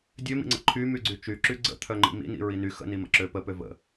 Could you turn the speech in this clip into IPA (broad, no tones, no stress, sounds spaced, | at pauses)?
dʲ ø m ḭ ŋ͡ǀ ə̰ ǃʰ y m y ɡ͡ǀ y t͡ʃ y ǁ y ɡ͡ǀ ə̰ t̪ʰ œ ŋ͡ǃ ḭ m ḭ n ḭ ɹ i n y x ə̰ n i m ə̰ ǁ ø p ə p ø v ə̰